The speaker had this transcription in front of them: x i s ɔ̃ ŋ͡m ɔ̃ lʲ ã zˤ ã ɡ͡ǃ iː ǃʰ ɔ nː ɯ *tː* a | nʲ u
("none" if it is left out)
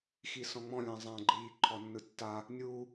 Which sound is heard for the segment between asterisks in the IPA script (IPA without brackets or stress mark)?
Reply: tː